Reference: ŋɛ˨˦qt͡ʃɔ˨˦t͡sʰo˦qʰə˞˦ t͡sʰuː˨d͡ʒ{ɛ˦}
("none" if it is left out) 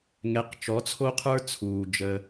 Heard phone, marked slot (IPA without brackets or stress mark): ə˦